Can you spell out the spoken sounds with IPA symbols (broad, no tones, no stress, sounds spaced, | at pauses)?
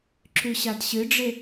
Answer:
ǁ ʉ ɕ a d ɕ ɨ ɖ͡ʐ e